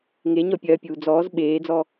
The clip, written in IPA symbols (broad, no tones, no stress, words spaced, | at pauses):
ŋe ɲɔpʲɐːpʲuː d͡zɔːz ɓeːd͡zɔ